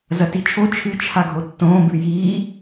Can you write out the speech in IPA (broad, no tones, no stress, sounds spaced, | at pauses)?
z ɐ t i t͡ʃʰ o t͡ʃʰ ɨ t͡ʃʰ a ɡʱ o tː õː b ʉ j iː